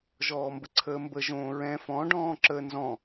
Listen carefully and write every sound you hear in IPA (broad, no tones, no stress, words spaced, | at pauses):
ʒɔːmbəǀʰəːmbə ʒõːɹɛ̃ fɔ̃ ɖɔ̃ːǁəːnzɔ̃